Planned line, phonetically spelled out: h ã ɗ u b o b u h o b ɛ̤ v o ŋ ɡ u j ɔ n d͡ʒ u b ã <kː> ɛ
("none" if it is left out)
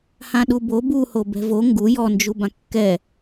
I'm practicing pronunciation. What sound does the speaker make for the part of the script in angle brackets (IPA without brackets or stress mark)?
kː